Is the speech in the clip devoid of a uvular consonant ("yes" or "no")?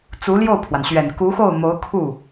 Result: yes